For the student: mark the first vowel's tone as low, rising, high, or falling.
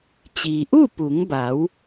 low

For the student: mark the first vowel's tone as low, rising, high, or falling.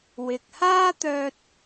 low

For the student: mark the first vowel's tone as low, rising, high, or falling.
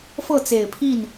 falling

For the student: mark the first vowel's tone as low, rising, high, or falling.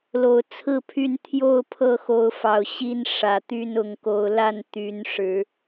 low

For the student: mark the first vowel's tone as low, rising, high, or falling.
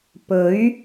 rising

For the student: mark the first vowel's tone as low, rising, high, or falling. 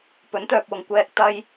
rising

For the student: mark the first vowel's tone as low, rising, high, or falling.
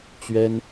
high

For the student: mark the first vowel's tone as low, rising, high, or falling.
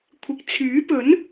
low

